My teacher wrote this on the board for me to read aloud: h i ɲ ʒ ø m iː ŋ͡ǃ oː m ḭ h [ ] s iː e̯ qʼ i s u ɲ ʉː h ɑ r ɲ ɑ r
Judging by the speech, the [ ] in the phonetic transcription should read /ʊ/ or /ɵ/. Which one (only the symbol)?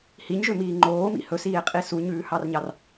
ɵ